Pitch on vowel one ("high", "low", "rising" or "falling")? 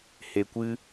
low